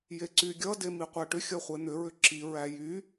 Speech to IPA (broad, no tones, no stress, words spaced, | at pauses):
jeǀyɡʲʌ demiqʷæʈʏ xʲʌχʷen̪ʏ ɹʏǁi ɹæjy